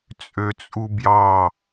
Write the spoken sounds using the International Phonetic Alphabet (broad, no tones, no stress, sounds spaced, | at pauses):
t͡sʼ ø t͡sʼ u b j ɑ